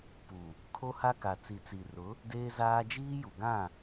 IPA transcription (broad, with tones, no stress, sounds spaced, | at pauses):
p u˨ | kʰ o˦ h a˦ k a˨ t͡s i˨ t͡s i˨ r ʊ˨˦ | d eː˦ z aː˦ d͡ʒ iː˦ j u˨ ɡ ã˦˨